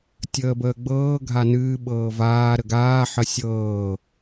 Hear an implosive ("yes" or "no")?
yes